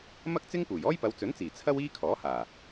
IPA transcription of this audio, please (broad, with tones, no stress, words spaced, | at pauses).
mɐ˥k̚t͡sɪ˥ŋpuː˨˩j ɔː˥jpɐ˨˧wt͡sɵ˨˥nt͡siː˨˩ t͡sʰɐ˥wiː˥kʰɔː˨˥haː˨˩